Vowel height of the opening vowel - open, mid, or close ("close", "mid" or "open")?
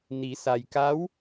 close